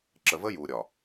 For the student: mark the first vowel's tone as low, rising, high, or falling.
low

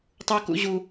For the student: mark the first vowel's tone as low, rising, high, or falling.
high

